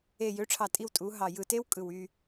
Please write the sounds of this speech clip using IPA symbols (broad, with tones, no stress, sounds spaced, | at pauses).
e˨˩ j ø˩˥ ʈ͡ʂʰ ɑ˨˩ tʼ i˦˨ w tʼ u˩˧ ɦ ɑ˨˩ j ɯ˨˩ t e˦ w kʼ ɯ˨˩ w y˦˨